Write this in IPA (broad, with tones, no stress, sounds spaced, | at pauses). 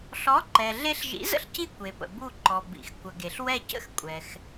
ɬ ɔ˨˥ ǃ ɛ˩ ɮ e˥ ɬ ʒ ḭ˨˥ z ə̰˥ ɬ c i˦˨ kʷ e˩ p ə̰˩ b u˦˨ ǃ ɔ˩ b ḭ˩ x kʷ ə˩ ɡ e˩ ɬ w ɛ˦˨ c ə̰˥ x kʷʼ ɛ˩ x